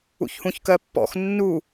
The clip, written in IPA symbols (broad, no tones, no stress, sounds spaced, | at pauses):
ṵ ç h ũ ç k ɜ pː ɔ̰ x nː u